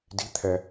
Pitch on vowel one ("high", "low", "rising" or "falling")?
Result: rising